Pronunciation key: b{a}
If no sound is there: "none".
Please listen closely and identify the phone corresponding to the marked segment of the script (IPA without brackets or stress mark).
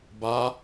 a